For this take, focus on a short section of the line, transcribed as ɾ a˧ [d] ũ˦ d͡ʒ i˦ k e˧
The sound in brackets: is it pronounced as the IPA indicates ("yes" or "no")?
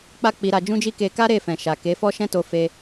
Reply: no